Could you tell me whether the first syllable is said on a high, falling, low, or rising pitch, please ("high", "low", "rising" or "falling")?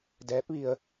rising